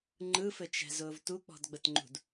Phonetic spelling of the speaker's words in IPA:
ŋ͡ǃ ɯ f ɘ t͡ʃ ɛ̤ z ʊː v t u k͡p ɔ̤ d ɡ͡b ə t ŋ͡ǃ ṳ d

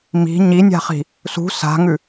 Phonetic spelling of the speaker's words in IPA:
m i̤ ɲ i nʲ a̤ χ i̤ | s ṳ s a̤ ŋ ʉ

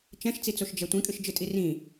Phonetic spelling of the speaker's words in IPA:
t͡ʃ ɛ̃ ʃ t͡s i t͡s o ʃ d͡ʒ ɛ tʷ ĩ kʼ ɨ ʃ d͡ʒ ɨ tʼ i r ĩ

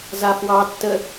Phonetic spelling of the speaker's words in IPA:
z a f w ɑ tː ə

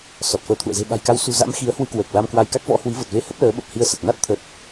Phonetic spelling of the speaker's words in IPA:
s ɔ˨˩ t̚ f əː˨˦ t̪ʰ ṵ˧˨ ə̯ z e̤˨˩ ɓ a̤˨˩ j k a˨˦ w s ṳ˨˩ z a̰˧˥ m x i˨˦ ə̯ h w ɨ˧ k w əː˨˩ k̚ l a˧ m k w a˧ j k a˦˥ k̚ v ɔ̰˧˥ h w i˨˦ v ə˨˩ t̚ v e˧ h ə˦˥ p̚ l əː˨˦ ɓ ə˨˩ p̚ h i˧ ə̯ s ə˨˩ t̚ n a˦˥ t̚ t̪ʰ ə˨˩ t̚

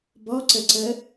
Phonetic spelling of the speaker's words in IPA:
b ɔ ǀ ə ǀ ə

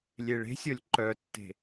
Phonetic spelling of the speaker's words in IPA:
lʲ e ɭ e̤ sʲ ɔ lʲ ǃ œ tː e̤

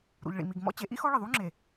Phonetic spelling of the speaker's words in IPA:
ɾ ṵ˨ ʎ ɭ ḭ˨ m i˨ ɡ m ɔ̰˦ t͡ɕ e˨˦ ʔ ḭ˦ x ɔ˦ ɭ ɪ˨ ðˤ u˦ ŋ͡ǁ e˨

